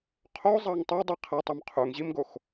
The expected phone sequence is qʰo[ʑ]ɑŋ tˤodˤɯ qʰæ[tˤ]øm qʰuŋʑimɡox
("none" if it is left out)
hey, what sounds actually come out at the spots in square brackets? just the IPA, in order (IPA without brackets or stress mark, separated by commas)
zˤ, tˤ